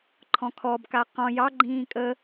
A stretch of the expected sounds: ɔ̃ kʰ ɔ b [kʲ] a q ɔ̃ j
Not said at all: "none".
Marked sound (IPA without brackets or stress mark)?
k